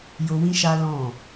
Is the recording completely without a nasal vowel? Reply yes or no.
no